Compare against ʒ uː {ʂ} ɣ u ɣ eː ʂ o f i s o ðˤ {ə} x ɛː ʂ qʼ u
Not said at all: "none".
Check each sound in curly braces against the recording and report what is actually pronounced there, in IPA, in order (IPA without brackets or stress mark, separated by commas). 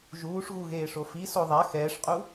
ʂ, a